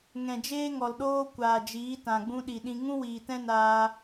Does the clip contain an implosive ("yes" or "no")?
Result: yes